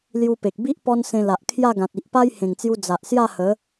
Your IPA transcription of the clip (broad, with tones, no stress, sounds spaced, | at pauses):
l j u˧ p e˨ k̚ b i˦ ʔ p ɔ˦ n s ẽ˧ l a˨ ʔ kʰ j a˥˧ ɡ ã˨ t̚ i˨ ʔ p a˦ j h ẽ˨˩ ŋ t͡s j u˧ d͡z a˨ ʔ s j a˥˧ h ə˨˦